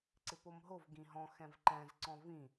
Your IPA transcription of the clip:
ǀ ɪ p o m ɦ o v ɡ ĩ ɦ ɔ̃ x ɛ̃ v ǃ ɛ̃ z ǀ ɔ̃ v ĩ

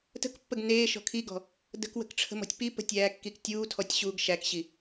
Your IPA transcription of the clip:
t ə̤ k pː ə ɡ n eː ʃ ɔ̤ kʰ i ɡ ɔ̤ | d ə̤ k w ə̤ k ʈ͡ʂʰ ə̤ m ɔ̤ tʲ p i p ə̤ tʲ æː kː i k tʲ uː tʰ ɔ tʲ ɕ uː ɡ ʃ æ k ɕ i

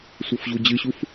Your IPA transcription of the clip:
sʷ ɤ f ʑ u d͡ʑ ɨ ɕ u f

